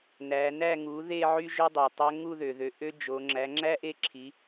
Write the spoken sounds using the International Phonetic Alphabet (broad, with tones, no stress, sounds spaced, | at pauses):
n æ˩˧ n æ˥˧ ŋ u˩˥ ð e˥˧ ʕ y˥ ʒ ø˥ dˤ o˩ tˤ æ˧˥ ŋ u˥˧ ð ø˩ ð ø˩˧ ʔ ø˥ d͡ʒ o˩˧ ŋ͡ǁ æ˩˥ ŋ͡ǁ æ˥ ʔ e˥˧ ǁʰ i˩˧